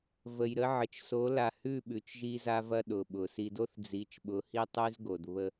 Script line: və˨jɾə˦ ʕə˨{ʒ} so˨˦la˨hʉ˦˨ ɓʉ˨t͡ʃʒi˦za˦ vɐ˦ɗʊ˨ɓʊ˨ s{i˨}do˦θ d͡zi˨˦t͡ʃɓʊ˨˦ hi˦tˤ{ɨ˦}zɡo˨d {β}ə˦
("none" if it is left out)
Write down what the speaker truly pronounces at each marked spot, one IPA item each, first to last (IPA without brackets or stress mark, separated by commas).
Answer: t͡ʃ, i˨, ʉ˦, β